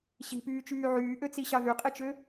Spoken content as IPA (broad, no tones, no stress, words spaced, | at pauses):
ɕi̤pyːt͡ʃyː ʕyːʔøt͡siɕɑ ðyqʼit͡ʃø